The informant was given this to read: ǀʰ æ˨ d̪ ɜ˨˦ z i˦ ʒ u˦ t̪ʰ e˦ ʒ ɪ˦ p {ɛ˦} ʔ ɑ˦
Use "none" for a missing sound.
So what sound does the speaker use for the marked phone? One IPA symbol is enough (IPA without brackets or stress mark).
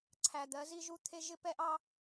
ɛ˦